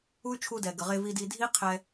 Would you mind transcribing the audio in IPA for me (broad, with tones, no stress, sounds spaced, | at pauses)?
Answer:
u˦ y̯ t͡ʃʰ u˧ d ɛ˨ ɡ ə˨ ʁ e˧ v i˧ d i˧ dʱ i˦ qʰ ɛ˧